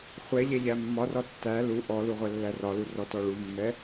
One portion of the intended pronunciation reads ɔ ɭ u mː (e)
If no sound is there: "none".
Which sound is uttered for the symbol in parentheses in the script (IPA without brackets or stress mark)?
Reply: ɛ